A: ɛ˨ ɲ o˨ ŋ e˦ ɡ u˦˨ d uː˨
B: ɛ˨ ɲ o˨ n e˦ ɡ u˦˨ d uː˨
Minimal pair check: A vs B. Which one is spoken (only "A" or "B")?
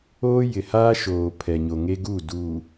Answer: A